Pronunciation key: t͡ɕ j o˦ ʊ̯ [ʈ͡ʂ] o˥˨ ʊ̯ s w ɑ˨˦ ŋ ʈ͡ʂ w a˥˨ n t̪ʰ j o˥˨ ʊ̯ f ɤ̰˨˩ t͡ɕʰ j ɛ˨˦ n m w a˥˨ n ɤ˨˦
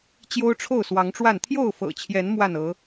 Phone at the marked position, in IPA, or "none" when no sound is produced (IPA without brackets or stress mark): ʈ͡ʂʰ